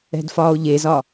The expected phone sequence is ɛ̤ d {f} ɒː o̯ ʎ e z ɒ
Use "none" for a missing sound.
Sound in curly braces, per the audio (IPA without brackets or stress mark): f